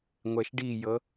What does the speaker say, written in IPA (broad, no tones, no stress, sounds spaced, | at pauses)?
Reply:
ŋʷ ɛ ʃ ɖ i j ɤ